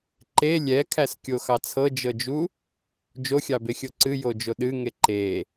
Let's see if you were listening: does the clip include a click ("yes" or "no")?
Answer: yes